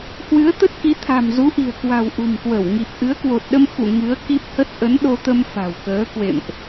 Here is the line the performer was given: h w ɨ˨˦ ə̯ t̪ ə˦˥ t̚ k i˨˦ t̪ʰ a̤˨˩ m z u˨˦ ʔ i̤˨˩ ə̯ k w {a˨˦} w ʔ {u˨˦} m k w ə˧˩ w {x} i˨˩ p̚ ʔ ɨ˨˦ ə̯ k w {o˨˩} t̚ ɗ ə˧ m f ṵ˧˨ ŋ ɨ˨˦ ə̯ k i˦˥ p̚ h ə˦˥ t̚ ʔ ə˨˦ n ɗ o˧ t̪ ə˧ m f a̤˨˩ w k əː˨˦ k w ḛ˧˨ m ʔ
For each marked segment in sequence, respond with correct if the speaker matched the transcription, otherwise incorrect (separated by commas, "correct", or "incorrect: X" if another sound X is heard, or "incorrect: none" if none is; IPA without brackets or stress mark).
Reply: incorrect: a̤˨˩, incorrect: ṳ˨˩, incorrect: ŋ, correct